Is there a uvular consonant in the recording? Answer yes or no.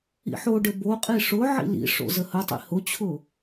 yes